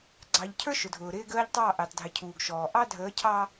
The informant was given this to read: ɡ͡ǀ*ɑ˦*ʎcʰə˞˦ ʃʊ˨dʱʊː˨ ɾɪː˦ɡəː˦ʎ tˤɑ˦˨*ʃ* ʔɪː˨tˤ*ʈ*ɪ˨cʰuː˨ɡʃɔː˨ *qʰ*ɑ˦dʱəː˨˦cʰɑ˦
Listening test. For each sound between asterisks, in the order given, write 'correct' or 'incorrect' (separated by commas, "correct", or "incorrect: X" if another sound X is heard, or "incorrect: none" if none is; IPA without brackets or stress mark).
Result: incorrect: ɑ˨, incorrect: none, incorrect: dʱ, incorrect: ʔ